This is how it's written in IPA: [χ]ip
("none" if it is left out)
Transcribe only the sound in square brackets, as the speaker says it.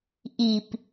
ʔ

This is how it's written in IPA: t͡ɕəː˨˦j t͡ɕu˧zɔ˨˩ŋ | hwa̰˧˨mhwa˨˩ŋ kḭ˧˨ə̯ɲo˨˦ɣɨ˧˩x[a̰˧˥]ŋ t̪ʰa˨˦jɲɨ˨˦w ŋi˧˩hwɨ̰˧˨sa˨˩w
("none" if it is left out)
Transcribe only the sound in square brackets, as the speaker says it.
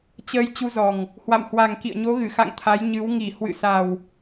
a̰˧˨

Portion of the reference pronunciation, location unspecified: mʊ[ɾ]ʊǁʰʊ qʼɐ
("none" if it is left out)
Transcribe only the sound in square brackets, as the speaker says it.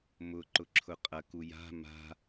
ǃ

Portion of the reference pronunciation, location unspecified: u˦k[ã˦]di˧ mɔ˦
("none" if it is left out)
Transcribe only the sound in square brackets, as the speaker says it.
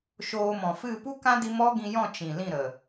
ã˦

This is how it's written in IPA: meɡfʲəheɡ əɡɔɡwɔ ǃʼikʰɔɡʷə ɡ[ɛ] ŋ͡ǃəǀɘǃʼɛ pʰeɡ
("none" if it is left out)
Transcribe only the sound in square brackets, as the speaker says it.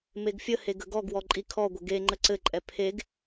e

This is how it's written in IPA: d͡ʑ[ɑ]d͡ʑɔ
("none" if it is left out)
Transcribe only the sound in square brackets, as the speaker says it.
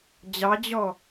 ɑ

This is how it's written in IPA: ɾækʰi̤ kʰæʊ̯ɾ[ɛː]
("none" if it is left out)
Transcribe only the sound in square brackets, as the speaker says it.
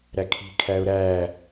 æː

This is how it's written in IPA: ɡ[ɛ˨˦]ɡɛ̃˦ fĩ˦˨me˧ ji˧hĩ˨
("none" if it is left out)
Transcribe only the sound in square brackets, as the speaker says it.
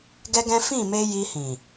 ɛ˦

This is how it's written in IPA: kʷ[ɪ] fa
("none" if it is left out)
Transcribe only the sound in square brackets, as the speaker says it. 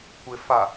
ɪ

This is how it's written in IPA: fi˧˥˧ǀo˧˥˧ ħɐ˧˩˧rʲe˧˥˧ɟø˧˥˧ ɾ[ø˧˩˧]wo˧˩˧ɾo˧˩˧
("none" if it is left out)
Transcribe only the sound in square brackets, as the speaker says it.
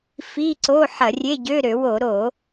ø˧˩˧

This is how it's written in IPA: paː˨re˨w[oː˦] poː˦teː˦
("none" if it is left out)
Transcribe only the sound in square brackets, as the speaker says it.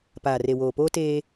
oː˨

